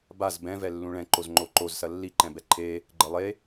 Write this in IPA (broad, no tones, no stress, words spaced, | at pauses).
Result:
baz bɛ̃vɛ lːũɭɛ̃ǃoz ŋ͡ǃoǃozsɐ lːiǃɛ̃bɛ ǃʰe | ɡ͡ǃɘlˠe